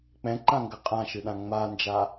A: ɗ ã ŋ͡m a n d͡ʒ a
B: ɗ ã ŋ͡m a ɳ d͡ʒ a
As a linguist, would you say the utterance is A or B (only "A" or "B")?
A